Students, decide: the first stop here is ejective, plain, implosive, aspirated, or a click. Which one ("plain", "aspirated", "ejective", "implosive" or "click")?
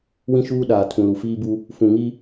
implosive